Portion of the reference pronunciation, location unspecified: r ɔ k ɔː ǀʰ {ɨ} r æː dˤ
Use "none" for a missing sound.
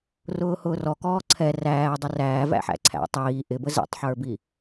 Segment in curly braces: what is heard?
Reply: ɛ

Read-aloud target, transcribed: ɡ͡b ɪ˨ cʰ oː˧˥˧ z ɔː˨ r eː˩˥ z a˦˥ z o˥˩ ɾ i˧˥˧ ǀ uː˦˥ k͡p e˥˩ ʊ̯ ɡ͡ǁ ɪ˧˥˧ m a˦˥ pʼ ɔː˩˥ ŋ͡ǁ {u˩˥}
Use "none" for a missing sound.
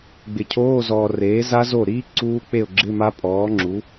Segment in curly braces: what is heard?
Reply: u˩˥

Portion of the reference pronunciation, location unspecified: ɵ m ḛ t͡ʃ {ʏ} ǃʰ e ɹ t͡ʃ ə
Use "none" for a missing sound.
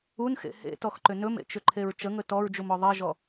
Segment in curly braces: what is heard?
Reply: ʏ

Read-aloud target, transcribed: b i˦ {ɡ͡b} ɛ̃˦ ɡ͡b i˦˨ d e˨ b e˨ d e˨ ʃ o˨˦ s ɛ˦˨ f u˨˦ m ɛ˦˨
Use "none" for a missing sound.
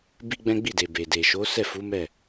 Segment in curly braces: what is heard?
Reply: ɡ͡b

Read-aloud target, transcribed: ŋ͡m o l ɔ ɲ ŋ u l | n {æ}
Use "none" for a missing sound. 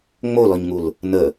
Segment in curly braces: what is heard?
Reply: ə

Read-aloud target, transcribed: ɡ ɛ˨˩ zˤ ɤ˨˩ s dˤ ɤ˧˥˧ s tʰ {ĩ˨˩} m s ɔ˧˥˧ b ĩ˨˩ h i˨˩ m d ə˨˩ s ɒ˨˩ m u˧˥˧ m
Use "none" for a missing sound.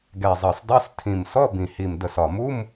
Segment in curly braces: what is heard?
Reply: ĩ˨˩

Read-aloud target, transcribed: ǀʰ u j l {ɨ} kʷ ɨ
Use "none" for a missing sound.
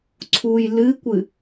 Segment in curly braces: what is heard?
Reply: ɨ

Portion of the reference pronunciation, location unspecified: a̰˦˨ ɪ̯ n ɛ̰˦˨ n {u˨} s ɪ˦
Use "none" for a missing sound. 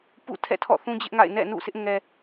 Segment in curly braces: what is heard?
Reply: ṵ˦˨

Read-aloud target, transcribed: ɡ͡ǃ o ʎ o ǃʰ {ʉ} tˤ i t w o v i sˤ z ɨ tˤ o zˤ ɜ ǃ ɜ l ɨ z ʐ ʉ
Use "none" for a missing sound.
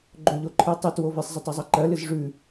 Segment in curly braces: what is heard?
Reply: ɨ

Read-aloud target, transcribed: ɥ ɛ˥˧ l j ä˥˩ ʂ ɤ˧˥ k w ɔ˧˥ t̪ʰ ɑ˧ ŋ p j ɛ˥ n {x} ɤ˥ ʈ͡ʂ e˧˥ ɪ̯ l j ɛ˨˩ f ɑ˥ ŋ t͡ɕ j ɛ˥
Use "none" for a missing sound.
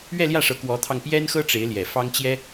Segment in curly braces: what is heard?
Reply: x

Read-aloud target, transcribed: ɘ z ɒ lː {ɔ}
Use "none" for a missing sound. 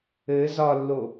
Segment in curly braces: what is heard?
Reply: o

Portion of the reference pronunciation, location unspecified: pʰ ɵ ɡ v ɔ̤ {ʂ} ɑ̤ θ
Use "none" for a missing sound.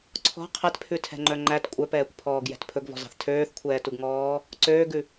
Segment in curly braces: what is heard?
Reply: z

